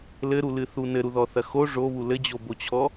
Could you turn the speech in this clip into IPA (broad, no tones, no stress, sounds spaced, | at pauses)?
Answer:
l ɘ ɾ u l ɨ θ u n ɘ ɾ u ð ɔ θ ɐ x o ʐ o β u l ɘ d͡ʑ o b o t͡ɕʰ ɔ